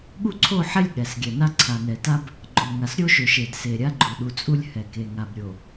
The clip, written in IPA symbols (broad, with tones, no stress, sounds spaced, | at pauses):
ɠ u˦ ǀʰ o˦˨ ħ ɛ˦ lʲ ɠ ɛ˨ s ɡʲ ɛ˨ n a˦ ǀʰ a˨ n ɛ˨ t a˦ b | ɡ͡ǃ o˨ ŋ a˨ s ɾʲ o˦ ʃ ø˨ ʃ e˨ d s e˨ ɾʲ a˦ ɡ͡ǃ u˨ ɗ u˨ t͡sʼ u˦ lʲ h ɛ˨ k e˨ ŋ a˨ b ɾʲ o˨